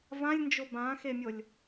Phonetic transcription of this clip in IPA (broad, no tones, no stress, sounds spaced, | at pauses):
v ã lʲ n d͡ʒ o b ã x e mʲ o lʲ